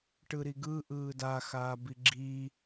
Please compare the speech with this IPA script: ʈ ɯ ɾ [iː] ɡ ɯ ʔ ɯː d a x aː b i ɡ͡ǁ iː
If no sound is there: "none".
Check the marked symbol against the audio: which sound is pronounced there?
i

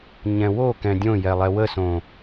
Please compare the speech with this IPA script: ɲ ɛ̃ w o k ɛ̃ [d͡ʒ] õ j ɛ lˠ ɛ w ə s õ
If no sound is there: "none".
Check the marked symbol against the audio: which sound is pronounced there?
dʲ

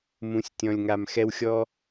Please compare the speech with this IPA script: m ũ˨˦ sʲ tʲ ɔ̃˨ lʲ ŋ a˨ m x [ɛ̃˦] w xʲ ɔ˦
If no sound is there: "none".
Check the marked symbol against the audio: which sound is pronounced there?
ɛ˦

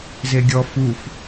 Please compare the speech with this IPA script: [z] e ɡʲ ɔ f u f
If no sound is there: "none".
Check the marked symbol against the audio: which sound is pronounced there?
z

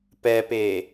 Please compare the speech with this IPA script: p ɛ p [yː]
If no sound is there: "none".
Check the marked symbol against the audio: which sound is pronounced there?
eː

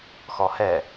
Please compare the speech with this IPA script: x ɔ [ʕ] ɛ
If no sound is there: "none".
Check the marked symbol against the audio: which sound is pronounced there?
h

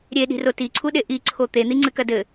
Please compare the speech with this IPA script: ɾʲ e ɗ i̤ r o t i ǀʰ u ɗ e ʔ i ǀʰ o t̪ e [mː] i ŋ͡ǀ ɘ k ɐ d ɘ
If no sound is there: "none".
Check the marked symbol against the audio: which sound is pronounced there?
n̪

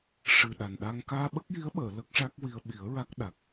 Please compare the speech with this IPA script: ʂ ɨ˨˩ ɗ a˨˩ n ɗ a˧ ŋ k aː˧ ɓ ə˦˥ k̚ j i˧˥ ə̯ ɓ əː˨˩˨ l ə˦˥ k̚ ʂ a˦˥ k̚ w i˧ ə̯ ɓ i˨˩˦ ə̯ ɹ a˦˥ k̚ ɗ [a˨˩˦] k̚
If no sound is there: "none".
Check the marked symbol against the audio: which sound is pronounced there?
a˨˩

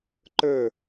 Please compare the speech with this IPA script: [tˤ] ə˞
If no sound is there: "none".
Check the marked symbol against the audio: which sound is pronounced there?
ǃ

